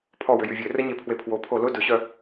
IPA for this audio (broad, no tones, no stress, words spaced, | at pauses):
pʰɔwʏ jyvʲø rəɲe pʰwepʰwo pʰolʊ dʊɕœ